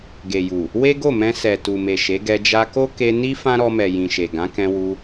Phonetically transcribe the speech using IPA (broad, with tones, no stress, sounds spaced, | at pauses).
ɡ e˨ j u˨ | w e˦ ɡ o˦˨ m ɛ̃˧ s ɛ˨ t u˨ m e˨ ʃ e˨˦ ɡ ɛ˧ d͡ʒ a˧ k o˦ k e˧ n i˦ f ã˦ ɾ ɔ˧ m ɛ˨ j ĩ˨ ʃ e˨ ɡ ã˨˦ k ɛ̃˧ w u˧